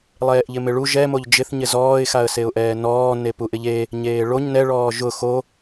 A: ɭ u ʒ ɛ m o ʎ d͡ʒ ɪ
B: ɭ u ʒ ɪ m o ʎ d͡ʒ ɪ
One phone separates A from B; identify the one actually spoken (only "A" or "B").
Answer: A